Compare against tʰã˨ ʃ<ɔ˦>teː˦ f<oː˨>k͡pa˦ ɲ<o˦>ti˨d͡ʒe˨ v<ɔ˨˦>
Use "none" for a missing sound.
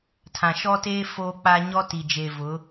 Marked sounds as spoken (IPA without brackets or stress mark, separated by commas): ɔ˦, oː˦, ɔ˦, ʊ˨˦